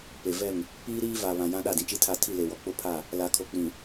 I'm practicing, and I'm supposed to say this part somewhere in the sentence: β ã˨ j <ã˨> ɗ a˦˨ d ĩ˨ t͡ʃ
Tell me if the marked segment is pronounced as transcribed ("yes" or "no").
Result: no